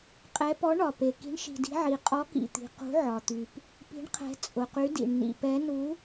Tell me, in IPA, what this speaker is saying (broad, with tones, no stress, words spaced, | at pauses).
qʼɛ˨˦ pɔ˨˦ɳɒ˨˩pe˨˩ ki̤˨˦ɳʃi̤˨˩di̤˨˦ʕi˨˩ qʼɔ˨˦kḭ˨˩t̪i̤˨˩ qṳ˨˦ʕɒ˨˩t̪y˨˩p | pi̤˨˦ɳqʰɛ̤˨˦ t͡sʼʊ˨˩qy˨˦dḭ˨˩ɳ nḭ˨˩pɛ˨˦nu˨˦